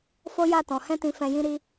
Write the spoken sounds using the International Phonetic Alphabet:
f o˦ j a˦˨ t ɔ̃˨ h ɛ̃˧ t ĩ˨ f ɛ̃˨ j ĩ˧ ɾ i˧

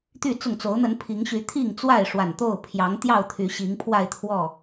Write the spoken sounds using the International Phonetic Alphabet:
t̪ y˥˨ t͡s ʊ˥˨ ŋ t͡s o˨˦ ʊ̯ n̪ ə˨˦ n pʰ i˨˦ ŋ ɕ y˨˦ t̪ʰ i˥˨ ŋ t͡s w a˥˨ ɪ̯ ʂ w a˨˩ n t̪ o˥˨ ʊ̯ pʰ j ɑ˨˦ ŋ t̪ j ɑ˥˨ ʊ̯ t̪ʰ y˨˦ ɕ i˨˦ ŋ pʰ w a˥˨ ɪ̯ t̪ʰ w ɔ˥˨

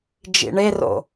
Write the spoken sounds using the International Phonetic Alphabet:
d͡ʒ ḭ ɳ e r o̰

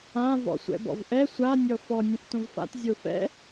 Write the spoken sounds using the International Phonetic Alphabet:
ã v ɔ̰ sʷ ɛ̰ b ɔ̰ v ʔ ɛ sʷ a nʲ ɔ f ɔ nʲ ɛ̃ f t õ v f a̰ t zʲ o f ɛ̰

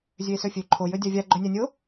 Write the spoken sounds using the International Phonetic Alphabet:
zʲ ø e̯ s ø fʲ ø ǃʰ o j ø dʲ a vʲ a ɡ͡ǃ ø nʲ a nʲ o

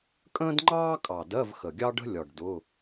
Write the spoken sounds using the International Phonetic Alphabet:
kʼ ə̃ː˥ d ŋ͡ǃ ɑː˥ kʼ ɑ˨˩ d ɜ˧˥˧ v x ə˨˩ ɡʲ ɑ˥ ɖ ə̤˥ lʲ ɒ˨˩ ɖ d ʊ˧˥˧

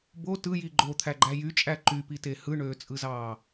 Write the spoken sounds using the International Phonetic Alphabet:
b o t ɯ j i ɡ͡ǃ o t̪ʰ æ ɡ͡ǃ æ j y t͡ʃʼ æ ǃ y p i t e h ɯ ɳ øː t͡sʼ ɯ z ɑː

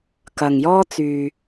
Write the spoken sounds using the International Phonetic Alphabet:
k ɐ˨ ŋ j ɔː˥ t͡s yː˨

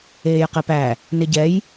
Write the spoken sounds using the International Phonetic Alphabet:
eː j q e p æ | n ɪ ɟ ɛ j

